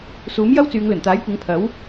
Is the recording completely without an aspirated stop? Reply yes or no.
no